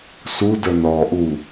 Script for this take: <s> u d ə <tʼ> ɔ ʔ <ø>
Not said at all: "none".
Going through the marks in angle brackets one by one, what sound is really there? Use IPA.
s, n, u

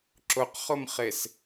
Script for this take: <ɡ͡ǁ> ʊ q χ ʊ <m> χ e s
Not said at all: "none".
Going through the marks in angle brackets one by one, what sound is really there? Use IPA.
ǁ, m

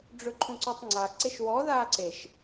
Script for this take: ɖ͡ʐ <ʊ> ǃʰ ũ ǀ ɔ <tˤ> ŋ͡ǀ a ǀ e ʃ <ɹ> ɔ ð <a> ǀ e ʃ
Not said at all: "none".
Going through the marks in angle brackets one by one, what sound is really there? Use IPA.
ɵ, tˤ, w, aː

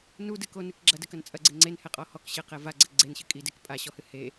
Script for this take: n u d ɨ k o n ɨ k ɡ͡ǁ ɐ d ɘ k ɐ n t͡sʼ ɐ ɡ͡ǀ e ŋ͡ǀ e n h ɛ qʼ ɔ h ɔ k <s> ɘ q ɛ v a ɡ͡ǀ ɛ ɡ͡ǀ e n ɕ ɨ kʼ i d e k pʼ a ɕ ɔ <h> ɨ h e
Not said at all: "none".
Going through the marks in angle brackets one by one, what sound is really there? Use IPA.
ɕ, h

